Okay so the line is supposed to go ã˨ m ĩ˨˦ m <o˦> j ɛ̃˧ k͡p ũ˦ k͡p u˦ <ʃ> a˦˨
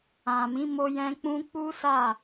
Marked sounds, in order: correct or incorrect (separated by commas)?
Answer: incorrect, incorrect